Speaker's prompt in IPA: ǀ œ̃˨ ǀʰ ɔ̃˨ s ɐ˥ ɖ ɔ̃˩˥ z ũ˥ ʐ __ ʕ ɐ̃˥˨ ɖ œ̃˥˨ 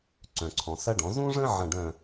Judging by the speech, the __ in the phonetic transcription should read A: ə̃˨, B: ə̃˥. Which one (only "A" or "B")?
B